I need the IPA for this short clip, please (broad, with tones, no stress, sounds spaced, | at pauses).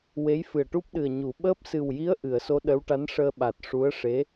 w e˧˥ j f ɨ˨˩ ə̯ ʈ u˦˥ p̚ ɗ ɨ˨˩ ə̯ ɲ u˨˩˦ ɓ əː˦˥ p̚ s ɨ˨˩ w j i˧˥ ə̯ ʔ ɨ˨˩˨ ə̯ s o˧˥ ɗ ə˧˥ w ʈ a˧˥ n ʂ əː˧ ɓ a˨˩ t̚ ʂ u˧˥ ə̯ ʂ e˧˥